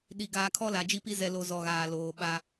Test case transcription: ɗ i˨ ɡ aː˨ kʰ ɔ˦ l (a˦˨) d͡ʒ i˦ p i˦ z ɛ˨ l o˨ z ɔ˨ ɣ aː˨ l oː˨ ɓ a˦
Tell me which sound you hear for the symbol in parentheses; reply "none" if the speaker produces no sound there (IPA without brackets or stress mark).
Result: a˨